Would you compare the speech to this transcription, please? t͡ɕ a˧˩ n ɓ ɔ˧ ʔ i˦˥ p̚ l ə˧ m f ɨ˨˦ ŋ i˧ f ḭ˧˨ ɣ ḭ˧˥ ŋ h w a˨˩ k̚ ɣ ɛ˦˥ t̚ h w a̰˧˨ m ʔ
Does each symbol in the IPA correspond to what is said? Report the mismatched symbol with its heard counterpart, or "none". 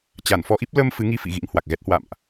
ɓ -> f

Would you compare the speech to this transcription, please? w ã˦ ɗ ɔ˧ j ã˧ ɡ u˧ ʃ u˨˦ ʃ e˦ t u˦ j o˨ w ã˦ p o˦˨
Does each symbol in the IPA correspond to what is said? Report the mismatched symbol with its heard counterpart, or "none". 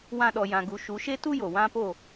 none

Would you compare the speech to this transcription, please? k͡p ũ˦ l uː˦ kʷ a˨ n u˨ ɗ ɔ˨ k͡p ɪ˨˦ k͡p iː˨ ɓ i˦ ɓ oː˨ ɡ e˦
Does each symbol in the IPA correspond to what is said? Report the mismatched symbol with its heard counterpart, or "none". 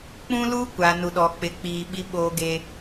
none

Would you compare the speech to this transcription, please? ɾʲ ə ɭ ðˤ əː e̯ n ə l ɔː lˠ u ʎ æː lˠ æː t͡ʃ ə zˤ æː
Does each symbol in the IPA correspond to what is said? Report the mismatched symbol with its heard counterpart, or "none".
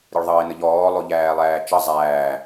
l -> ʎ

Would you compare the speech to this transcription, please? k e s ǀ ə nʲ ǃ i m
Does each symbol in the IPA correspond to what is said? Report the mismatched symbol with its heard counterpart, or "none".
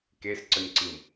ǃ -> ǀ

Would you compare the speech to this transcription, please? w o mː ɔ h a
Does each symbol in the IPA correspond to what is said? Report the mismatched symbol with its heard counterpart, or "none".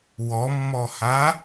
o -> ɔ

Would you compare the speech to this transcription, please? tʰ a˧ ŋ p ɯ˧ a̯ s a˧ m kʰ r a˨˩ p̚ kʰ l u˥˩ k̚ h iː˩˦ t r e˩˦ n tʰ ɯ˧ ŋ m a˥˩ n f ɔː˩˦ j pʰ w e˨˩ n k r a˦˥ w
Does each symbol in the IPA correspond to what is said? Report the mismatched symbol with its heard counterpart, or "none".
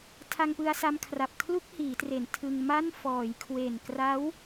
pʰ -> kʰ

